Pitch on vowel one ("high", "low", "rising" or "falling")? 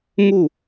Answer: falling